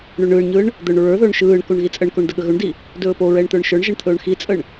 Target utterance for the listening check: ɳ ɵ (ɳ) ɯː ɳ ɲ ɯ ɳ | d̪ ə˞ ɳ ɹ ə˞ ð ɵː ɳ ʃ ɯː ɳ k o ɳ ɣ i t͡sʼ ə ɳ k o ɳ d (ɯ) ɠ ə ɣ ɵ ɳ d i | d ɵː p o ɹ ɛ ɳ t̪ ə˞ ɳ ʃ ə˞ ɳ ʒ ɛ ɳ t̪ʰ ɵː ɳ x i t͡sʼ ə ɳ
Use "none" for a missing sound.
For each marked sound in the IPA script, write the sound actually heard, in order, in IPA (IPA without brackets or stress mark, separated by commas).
ɳ, ə